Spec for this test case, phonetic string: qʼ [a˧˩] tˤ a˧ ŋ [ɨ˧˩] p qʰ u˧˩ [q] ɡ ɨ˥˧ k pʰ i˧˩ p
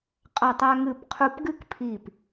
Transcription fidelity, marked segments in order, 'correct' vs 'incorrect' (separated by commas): correct, correct, incorrect